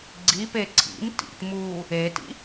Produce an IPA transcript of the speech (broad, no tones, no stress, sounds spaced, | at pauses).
ɡ͡ǀ i p e ǀʰ ḭ m t ḭ t m uː | e t ḭ